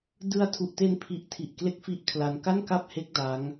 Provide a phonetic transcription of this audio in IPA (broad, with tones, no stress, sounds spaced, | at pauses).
d ɯ˧ a̯ tʰ u˨˩ ʔ t e˧ n pʰ i˨˩ ʔ tʰ i˨˩ ʔ k l e˥˩ k̚ f i˥˩ ʔ kʰ l a˧ n k a˥˩ n k a˥˩ p̚ h e˦˥ k̚ d a˦˥ ŋ